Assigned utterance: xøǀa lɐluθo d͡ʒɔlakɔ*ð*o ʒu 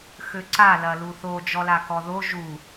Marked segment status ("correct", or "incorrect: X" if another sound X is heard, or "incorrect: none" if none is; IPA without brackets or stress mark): correct